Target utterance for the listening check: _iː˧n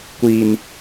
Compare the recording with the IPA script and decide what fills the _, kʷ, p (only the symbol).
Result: kʷ